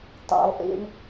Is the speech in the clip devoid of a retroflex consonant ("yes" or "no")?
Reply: no